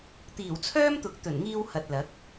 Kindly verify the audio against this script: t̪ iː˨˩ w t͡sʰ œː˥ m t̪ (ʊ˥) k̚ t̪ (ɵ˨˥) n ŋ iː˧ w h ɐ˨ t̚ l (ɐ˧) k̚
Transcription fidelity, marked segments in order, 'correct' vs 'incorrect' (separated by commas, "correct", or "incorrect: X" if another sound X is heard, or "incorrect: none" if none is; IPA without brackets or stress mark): incorrect: ʊ˨˥, incorrect: ɵ˨˩, incorrect: ɐ˨˥